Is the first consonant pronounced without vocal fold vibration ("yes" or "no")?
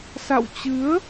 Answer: yes